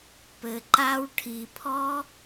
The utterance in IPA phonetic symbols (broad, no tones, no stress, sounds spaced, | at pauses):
p ɘ ǃ a w ʈʰ i pʰ ɔ